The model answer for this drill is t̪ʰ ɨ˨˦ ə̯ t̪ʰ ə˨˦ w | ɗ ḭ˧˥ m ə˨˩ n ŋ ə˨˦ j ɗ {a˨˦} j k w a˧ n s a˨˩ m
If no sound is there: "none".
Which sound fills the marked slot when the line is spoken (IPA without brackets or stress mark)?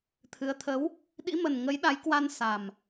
a˨˦